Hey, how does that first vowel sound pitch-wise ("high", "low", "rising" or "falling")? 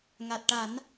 low